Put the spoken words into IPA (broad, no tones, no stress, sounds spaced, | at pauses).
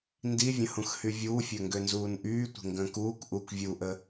n d i vʲ ə̃ h ũ x h y vʲ uː fʲ ø ŋ ɡ ø n z uː n ʔ yː tʷ ə̤ ŋ ɡ ə̃ː k uː k ʔ u k vʲ u ʔ ə